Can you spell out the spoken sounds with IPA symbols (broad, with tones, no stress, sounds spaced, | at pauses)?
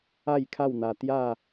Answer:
a˥˧ j kʰ a˥˧ w n̪ a˧ t̪ j a˥˧